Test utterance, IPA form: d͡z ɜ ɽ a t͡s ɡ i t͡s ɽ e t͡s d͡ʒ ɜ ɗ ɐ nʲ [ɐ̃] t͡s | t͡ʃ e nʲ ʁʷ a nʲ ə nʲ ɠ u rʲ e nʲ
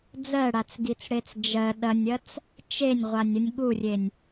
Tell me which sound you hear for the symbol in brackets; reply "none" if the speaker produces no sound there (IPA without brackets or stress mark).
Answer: ɐ